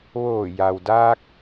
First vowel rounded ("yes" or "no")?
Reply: yes